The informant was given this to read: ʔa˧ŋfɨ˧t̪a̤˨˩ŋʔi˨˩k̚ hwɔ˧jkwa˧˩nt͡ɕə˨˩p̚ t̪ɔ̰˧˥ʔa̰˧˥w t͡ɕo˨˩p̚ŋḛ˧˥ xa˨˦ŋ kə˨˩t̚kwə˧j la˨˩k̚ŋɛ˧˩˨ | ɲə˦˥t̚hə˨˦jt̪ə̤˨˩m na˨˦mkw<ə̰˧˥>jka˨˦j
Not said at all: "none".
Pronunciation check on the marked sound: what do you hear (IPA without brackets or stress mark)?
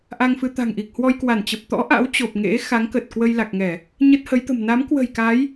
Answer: ə̤˨˩